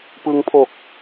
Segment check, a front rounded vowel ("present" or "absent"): absent